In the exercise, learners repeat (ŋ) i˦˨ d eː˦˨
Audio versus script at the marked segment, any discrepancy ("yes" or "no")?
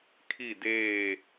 yes